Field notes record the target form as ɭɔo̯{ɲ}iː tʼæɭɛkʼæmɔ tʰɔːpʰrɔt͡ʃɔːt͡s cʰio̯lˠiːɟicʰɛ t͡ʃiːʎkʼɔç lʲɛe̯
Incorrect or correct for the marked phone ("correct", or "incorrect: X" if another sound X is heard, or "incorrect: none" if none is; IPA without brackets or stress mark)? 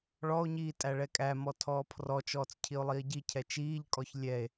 correct